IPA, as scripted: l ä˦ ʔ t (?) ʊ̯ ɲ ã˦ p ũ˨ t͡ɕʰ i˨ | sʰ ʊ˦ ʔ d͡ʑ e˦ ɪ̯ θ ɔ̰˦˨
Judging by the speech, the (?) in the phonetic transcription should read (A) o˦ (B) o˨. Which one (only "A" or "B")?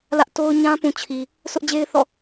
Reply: A